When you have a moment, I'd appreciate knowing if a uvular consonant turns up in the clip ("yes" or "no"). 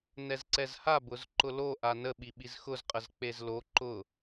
yes